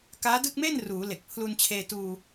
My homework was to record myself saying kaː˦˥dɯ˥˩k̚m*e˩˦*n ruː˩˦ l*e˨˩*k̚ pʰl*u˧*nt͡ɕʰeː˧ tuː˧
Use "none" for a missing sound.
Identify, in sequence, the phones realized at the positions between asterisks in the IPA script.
e˥˩, e˨˩, u˧

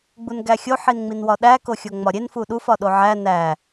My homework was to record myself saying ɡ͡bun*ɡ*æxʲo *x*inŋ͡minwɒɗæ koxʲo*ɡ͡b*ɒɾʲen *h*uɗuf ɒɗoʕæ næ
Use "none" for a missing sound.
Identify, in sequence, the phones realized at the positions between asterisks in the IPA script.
ɡ, ħ, ŋ͡m, f

